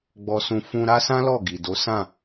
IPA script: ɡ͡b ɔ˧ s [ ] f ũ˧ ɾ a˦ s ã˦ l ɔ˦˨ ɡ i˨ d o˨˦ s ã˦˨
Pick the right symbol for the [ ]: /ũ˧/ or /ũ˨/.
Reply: ũ˧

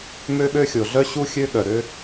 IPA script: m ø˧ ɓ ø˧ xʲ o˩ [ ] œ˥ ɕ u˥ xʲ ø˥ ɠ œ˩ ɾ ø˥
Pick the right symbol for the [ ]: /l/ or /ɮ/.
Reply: ɮ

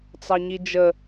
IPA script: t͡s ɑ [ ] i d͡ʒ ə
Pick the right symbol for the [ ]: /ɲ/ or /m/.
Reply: ɲ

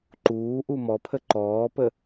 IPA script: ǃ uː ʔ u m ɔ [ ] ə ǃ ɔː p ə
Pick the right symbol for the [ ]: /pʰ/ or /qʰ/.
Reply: pʰ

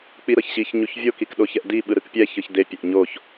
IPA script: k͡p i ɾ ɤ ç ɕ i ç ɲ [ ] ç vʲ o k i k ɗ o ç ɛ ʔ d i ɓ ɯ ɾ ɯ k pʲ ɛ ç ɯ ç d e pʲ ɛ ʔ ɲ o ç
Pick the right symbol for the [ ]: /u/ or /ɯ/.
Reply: u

